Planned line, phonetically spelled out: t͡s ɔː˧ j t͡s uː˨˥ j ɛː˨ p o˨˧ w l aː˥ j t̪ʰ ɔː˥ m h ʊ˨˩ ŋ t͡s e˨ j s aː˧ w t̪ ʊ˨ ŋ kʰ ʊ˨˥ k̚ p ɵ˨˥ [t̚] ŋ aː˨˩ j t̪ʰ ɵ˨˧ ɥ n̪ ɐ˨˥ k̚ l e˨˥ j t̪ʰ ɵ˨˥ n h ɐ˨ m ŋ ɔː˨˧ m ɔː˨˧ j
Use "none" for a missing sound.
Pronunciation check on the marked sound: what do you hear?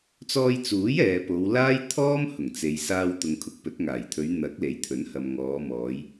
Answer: t̚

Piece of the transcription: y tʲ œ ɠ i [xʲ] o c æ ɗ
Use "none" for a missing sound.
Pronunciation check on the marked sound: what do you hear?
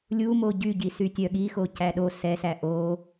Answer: x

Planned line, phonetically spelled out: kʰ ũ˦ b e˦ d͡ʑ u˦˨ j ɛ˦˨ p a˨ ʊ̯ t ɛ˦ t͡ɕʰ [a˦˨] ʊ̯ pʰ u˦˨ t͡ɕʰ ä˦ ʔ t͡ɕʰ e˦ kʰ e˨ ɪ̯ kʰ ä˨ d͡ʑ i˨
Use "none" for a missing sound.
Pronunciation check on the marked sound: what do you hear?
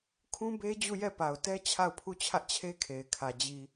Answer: a˦˨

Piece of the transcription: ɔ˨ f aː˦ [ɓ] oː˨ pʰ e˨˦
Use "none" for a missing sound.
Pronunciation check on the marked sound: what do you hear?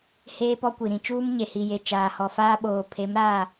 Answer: ɓ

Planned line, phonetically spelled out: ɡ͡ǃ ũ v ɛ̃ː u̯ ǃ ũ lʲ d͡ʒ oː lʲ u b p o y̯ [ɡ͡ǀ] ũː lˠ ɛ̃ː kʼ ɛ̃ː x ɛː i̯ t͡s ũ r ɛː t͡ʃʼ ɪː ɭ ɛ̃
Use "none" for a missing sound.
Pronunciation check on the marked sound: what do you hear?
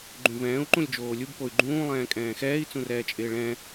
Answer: ɡ͡ǃ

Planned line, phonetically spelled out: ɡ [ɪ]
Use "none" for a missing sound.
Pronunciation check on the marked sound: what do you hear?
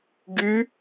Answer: y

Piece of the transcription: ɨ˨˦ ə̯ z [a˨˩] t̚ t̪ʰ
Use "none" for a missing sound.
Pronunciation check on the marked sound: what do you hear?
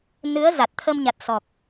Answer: a˨˩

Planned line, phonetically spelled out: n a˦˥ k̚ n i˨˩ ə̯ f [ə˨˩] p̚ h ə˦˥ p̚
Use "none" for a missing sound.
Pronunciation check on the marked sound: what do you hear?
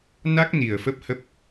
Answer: ə˦˥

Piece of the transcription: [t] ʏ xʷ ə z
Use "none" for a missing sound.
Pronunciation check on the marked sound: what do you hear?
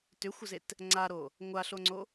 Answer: t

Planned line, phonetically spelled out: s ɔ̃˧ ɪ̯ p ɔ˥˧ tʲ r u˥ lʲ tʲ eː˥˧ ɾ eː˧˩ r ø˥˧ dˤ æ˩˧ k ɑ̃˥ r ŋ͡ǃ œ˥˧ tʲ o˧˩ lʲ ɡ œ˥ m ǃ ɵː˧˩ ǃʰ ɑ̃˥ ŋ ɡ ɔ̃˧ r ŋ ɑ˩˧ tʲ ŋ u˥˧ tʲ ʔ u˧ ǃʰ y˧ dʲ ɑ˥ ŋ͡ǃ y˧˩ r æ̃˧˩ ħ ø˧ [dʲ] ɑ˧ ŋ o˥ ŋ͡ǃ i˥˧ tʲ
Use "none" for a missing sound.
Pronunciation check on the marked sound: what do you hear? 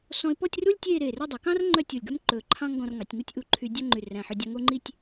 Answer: dʲ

